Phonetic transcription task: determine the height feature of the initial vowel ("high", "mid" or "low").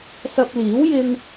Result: low